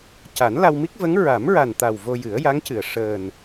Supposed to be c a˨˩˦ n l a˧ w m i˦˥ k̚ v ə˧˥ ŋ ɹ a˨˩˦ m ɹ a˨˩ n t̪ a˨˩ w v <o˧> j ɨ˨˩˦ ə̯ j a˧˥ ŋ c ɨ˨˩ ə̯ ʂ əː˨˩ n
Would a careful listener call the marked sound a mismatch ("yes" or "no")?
no